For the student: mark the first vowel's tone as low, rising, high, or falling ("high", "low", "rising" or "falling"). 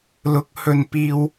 rising